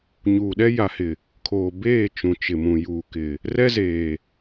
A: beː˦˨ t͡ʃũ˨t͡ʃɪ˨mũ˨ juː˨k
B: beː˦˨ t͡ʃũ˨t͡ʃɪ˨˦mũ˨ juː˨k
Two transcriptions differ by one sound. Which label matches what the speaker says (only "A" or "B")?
A